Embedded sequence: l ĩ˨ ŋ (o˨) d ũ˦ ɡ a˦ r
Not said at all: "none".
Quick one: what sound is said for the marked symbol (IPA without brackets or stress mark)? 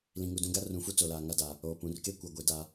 u˨